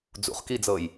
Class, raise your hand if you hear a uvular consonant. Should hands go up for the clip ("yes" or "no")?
yes